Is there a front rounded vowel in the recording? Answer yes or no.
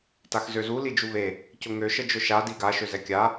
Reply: yes